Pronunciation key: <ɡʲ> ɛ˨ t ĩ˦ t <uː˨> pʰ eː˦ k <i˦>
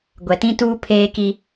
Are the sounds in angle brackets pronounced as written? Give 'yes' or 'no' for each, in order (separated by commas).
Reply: no, no, yes